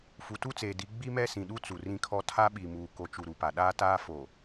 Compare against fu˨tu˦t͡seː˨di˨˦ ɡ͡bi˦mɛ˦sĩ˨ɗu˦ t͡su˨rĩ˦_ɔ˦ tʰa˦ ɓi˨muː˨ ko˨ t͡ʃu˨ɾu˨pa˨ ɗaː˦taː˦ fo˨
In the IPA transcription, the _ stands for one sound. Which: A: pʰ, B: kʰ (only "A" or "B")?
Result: B